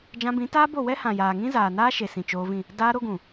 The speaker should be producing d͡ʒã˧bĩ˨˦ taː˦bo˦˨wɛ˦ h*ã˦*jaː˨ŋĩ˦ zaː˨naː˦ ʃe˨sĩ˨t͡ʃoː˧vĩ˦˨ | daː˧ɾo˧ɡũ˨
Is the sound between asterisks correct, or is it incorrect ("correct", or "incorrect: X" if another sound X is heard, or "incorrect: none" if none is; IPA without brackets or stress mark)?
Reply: incorrect: ã˨